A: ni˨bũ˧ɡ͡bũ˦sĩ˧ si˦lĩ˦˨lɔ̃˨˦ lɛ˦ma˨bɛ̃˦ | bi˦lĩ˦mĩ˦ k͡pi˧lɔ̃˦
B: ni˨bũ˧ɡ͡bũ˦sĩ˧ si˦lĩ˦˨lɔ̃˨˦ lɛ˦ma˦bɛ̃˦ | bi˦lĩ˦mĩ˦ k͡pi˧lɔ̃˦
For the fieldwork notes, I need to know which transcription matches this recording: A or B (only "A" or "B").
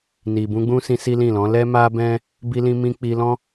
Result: B